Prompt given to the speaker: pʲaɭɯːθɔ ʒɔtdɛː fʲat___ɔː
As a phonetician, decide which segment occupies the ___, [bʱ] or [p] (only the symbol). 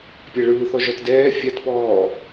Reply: p